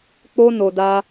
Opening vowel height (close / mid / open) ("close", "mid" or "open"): mid